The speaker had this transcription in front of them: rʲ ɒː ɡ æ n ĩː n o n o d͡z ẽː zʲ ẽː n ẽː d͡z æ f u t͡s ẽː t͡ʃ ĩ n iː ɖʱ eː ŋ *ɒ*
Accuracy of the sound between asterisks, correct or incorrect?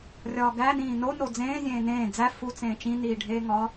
correct